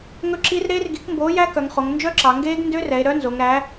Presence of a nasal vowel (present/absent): absent